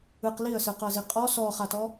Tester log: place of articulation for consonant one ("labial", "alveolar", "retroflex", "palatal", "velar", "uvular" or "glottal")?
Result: uvular